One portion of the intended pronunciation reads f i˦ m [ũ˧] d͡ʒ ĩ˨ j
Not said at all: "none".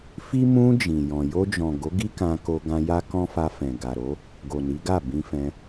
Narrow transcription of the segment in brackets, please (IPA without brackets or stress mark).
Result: ũ˧